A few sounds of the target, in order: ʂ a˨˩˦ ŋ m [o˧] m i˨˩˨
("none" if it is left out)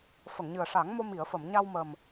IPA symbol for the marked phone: o˧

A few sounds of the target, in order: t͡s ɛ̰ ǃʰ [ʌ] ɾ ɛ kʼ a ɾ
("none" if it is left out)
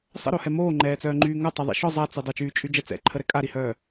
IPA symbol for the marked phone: ə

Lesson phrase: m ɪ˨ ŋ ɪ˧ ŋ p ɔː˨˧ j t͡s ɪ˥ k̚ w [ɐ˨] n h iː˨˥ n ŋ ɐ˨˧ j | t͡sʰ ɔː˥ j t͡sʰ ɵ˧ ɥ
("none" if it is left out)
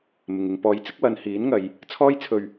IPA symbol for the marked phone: ɐ˨˧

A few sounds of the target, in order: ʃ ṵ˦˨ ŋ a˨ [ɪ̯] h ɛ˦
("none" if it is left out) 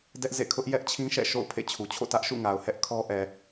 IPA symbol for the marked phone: ʊ̯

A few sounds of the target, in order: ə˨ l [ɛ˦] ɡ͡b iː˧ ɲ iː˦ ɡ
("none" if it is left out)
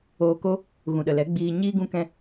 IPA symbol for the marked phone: ɛ˨˦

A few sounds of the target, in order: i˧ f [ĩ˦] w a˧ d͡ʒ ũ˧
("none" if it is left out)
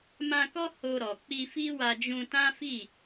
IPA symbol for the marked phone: i˦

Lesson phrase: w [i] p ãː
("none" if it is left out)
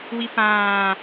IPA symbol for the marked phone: i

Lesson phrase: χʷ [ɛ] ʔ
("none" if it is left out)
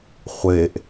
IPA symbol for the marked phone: e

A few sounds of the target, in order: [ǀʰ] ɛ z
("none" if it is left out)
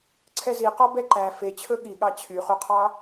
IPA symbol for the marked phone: ǀʰ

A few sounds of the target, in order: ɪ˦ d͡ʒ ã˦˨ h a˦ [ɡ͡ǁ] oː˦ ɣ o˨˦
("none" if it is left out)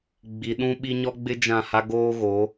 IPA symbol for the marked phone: ɡ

